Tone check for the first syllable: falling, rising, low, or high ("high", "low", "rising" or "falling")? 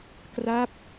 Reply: falling